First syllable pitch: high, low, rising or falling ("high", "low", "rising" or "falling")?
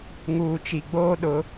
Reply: low